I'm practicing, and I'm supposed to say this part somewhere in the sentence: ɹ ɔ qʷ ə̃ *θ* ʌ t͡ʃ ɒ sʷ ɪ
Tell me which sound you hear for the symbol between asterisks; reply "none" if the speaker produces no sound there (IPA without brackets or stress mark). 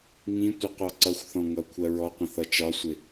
θ